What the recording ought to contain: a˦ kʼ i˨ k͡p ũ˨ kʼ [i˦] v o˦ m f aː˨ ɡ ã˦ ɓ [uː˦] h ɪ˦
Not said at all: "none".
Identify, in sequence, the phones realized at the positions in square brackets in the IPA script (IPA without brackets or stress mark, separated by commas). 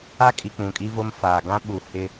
i˦, uː˨